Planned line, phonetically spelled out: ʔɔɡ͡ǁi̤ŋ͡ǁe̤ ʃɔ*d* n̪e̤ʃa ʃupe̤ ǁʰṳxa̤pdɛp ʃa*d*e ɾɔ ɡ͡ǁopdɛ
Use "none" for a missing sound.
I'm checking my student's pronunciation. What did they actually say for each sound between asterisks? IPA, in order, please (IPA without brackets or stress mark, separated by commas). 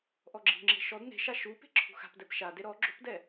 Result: d, d